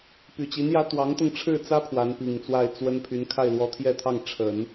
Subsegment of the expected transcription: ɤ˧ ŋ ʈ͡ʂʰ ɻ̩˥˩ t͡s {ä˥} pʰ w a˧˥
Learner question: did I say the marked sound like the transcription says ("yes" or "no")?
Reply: yes